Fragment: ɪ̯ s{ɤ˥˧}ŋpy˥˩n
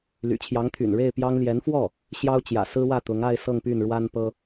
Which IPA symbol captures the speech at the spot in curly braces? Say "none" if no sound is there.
ɤ˥˧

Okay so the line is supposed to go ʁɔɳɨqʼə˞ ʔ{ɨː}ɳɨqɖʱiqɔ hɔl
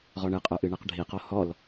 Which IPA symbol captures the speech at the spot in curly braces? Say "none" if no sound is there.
ɨ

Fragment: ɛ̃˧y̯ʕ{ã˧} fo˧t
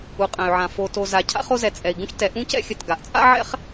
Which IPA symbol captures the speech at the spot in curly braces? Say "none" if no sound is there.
ã˧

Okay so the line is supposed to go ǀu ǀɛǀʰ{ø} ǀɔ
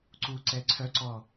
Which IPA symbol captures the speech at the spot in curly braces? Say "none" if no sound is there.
œ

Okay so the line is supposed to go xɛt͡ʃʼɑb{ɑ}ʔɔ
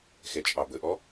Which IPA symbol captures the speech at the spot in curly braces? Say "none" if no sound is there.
ə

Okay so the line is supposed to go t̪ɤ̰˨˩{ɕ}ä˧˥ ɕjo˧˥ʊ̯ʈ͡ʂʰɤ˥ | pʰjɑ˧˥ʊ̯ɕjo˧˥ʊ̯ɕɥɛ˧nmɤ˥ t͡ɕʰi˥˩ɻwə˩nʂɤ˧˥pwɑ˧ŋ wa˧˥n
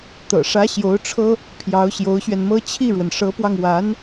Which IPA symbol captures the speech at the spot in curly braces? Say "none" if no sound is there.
ʂ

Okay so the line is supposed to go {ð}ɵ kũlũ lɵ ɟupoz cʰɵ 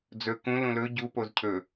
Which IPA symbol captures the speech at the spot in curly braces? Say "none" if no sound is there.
d͡z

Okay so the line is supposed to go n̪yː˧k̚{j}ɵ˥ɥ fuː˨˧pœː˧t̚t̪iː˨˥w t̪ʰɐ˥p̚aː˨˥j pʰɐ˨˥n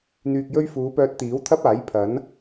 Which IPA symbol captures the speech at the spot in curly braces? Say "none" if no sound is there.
j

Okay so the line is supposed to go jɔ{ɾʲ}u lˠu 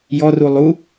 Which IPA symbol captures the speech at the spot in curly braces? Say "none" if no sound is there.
r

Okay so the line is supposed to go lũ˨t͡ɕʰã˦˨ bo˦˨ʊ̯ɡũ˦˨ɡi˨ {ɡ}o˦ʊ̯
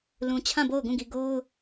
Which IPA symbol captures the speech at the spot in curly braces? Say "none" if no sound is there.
ɡ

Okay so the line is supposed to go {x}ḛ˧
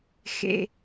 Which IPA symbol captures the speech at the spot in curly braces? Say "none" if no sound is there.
x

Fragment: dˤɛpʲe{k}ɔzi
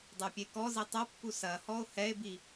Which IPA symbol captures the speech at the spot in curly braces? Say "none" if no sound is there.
k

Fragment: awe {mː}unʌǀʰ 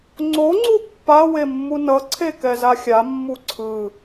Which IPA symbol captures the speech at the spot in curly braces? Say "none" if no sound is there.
mː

